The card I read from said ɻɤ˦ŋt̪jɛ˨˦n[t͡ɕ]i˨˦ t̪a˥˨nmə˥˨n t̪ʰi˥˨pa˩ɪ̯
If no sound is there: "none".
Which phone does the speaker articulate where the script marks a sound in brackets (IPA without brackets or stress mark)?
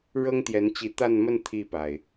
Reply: t͡ɕ